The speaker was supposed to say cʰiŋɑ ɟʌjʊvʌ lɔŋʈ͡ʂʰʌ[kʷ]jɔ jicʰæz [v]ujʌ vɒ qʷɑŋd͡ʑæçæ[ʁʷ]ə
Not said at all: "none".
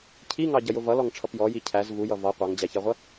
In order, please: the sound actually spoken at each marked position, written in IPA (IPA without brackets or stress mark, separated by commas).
p, v, ʁʷ